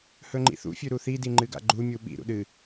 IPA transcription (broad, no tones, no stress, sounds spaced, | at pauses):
h ɵ ŋ͡ǃ ḭ θ ṵ fʲ ʉ ɾ u θ i d i ŋ͡ǃ ɨ ɡ a̰ ɡ͡ǃ u mʲ u ɓ ḭ ɾ ṵ ɗ ɨ